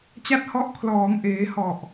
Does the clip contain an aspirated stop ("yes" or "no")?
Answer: yes